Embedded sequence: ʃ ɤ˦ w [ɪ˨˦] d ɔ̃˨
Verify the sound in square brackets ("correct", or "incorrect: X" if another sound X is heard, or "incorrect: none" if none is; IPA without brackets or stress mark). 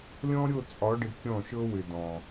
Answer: incorrect: ɪ˨